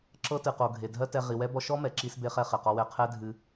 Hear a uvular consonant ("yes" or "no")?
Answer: yes